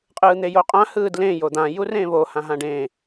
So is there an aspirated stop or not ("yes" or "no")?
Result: no